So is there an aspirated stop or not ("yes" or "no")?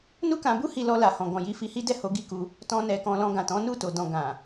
no